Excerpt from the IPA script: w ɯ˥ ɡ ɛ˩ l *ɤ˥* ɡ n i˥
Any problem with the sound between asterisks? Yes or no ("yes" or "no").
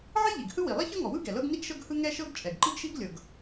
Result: no